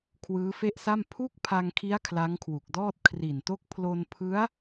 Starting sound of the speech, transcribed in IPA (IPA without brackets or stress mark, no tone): kʰ